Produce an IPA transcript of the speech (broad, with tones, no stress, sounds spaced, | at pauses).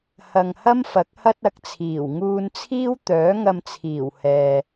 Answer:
h ɐ˧ ŋ h ɐ˥ m f ɐ˨˥ k̚ h ɐ˥ t̚ ɐ˨˥ k̚ t͡sʰ iː˨˩ w ŋ uː˧ n t͡sʰ iː˥ w t̪ œː˨˥ ŋ ɐ˧ m t͡sʰ iː˨˩ w h ɛː˨